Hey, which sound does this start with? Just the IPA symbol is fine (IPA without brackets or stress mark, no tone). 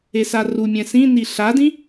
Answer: e